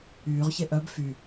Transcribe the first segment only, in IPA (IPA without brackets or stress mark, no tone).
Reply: yː